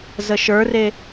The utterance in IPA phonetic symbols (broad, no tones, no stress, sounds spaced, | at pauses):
z ə ʃ ə˞ r e